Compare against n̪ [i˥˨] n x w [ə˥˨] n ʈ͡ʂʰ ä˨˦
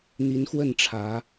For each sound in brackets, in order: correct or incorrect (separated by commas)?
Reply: incorrect, correct